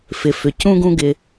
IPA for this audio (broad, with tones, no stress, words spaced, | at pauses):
fɪ˩ fʏ˩cũ˥ɡũ˦ ɡɪ˨